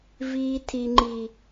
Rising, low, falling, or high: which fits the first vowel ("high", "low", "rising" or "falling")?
high